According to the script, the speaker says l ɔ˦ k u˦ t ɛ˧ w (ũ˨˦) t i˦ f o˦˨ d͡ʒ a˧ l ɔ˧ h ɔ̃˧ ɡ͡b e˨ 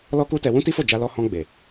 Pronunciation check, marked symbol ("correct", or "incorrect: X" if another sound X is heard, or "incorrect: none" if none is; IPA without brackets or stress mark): incorrect: ũ˦